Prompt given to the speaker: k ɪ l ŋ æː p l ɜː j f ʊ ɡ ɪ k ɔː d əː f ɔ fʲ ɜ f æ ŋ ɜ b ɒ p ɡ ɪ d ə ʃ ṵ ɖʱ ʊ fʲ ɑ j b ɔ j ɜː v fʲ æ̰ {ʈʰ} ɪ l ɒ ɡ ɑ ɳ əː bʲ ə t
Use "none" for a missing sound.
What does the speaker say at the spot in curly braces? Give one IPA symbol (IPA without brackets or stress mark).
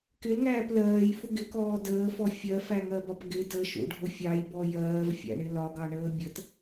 ɳ